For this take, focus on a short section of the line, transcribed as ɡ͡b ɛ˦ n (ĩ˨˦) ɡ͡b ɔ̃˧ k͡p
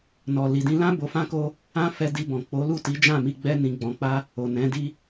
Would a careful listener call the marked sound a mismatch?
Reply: yes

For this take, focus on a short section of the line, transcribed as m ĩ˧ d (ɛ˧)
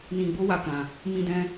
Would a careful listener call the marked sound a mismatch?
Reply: yes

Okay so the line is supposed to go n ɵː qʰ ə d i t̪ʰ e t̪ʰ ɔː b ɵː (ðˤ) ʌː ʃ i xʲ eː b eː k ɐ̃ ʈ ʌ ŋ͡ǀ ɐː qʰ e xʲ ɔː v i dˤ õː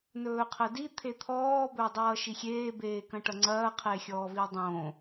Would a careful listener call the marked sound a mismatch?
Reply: yes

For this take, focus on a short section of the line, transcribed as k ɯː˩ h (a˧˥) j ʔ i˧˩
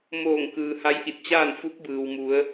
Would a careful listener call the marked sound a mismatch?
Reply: no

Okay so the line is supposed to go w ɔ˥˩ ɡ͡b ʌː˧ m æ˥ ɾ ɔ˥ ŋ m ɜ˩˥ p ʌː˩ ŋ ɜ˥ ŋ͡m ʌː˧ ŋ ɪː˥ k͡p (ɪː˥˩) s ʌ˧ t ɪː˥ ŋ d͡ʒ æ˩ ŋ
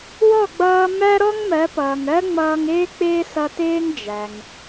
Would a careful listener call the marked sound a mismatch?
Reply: yes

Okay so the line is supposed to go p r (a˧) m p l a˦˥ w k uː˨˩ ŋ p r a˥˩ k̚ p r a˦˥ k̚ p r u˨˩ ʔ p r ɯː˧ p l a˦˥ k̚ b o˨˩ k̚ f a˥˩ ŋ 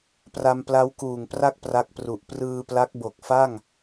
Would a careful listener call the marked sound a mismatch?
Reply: no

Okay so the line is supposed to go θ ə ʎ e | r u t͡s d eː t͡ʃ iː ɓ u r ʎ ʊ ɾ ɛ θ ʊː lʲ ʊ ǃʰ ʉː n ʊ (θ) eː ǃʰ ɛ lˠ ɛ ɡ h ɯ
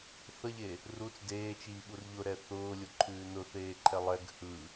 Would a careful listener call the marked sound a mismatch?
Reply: no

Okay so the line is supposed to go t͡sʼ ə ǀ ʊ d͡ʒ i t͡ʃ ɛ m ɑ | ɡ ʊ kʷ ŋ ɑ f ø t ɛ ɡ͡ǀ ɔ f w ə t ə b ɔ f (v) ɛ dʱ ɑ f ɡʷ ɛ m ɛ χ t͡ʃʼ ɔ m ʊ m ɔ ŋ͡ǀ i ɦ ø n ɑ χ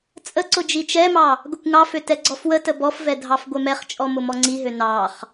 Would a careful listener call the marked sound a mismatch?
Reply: no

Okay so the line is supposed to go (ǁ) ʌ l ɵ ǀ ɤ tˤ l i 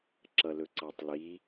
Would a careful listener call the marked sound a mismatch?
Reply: no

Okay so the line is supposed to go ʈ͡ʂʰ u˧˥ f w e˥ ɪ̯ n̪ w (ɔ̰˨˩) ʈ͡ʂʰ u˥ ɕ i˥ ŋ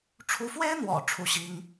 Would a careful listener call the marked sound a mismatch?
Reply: no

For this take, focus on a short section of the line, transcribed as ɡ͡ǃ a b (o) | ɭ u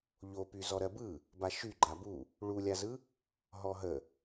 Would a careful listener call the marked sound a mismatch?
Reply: yes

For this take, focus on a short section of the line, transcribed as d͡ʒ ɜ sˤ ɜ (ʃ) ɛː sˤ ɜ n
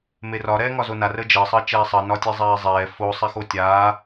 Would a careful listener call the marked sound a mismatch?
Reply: yes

